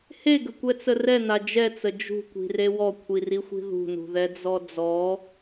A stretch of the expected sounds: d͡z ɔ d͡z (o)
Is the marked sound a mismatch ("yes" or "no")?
yes